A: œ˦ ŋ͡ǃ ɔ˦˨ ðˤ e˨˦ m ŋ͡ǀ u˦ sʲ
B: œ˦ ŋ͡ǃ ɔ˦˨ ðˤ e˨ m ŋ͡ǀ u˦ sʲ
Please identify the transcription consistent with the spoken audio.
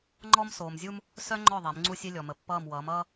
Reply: A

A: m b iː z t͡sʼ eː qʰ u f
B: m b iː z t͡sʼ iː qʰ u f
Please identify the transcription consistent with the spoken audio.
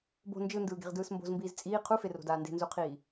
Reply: B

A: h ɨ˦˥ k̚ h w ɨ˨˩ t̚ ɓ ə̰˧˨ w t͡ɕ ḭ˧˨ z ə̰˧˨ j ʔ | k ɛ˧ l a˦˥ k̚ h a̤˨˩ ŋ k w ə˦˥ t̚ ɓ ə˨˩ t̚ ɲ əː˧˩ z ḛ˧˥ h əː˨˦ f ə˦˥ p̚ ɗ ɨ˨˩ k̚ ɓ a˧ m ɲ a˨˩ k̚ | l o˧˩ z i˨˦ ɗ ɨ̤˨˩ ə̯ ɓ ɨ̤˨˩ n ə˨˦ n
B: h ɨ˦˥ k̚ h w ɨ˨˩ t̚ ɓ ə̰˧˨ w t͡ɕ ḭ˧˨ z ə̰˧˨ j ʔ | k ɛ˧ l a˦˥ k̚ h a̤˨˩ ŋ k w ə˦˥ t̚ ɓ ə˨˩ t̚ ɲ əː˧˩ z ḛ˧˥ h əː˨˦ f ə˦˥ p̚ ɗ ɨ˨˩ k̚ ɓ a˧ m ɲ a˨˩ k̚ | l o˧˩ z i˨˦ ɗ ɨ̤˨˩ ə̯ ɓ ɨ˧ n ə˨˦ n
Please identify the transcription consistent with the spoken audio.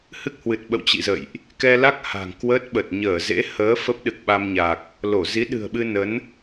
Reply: B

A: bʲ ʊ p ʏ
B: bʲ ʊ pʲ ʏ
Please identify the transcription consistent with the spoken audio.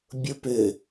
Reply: A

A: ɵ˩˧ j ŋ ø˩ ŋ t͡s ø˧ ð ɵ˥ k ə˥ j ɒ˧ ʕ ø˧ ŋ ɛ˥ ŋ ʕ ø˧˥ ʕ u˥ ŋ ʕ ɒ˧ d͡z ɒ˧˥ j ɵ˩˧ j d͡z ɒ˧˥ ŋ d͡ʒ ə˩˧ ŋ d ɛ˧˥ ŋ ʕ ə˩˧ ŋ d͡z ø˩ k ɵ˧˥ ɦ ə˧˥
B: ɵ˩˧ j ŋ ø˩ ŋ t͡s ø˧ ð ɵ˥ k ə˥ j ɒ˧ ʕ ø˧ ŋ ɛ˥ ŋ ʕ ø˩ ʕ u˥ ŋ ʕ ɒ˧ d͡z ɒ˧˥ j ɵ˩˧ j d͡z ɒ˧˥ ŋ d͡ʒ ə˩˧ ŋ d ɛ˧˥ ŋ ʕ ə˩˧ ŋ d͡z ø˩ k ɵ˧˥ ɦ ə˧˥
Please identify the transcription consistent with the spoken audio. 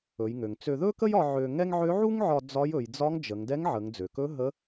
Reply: A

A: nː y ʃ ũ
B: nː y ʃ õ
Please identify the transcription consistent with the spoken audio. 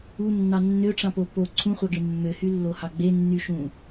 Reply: A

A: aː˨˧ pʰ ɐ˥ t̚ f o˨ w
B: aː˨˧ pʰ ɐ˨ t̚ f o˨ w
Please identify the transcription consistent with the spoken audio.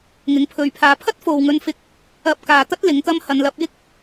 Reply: A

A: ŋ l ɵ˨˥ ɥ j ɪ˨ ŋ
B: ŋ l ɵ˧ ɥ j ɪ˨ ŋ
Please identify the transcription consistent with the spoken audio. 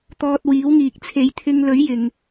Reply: A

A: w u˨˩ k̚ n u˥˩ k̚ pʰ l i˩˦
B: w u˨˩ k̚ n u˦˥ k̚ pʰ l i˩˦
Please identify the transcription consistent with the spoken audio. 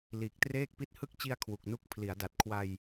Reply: A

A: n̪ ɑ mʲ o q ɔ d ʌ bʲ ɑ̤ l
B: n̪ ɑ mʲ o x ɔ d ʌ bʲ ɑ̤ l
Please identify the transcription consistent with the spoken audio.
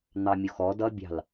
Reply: B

